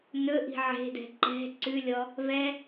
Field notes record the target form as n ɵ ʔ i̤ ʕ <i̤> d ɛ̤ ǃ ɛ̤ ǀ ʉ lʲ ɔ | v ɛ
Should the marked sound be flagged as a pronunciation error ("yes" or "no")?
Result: yes